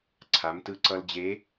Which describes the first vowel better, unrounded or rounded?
unrounded